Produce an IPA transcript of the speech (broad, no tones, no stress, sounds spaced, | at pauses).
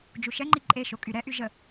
d͡ʒ u ʃ ɛ ŋ͡ǃ i ǃʼ e ʃ o kʼ y ɾ ɛ ʔ y ʒ ə